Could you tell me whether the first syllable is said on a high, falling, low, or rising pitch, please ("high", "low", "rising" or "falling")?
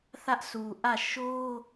high